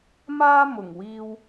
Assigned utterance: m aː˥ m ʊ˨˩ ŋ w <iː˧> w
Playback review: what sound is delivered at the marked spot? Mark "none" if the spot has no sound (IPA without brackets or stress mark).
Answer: iː˧